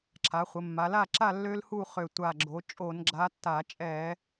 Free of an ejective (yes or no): no